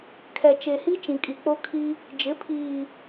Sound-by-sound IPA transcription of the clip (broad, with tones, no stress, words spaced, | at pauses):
kʰɛ˨t͡ʃe˨hi˦ t͡ʃĩ˨kʼi˨ k͡po˦kʰi˦ | d͡ʒɪ˨˦pʰiː˨